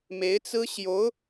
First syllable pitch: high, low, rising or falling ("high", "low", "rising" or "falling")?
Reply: rising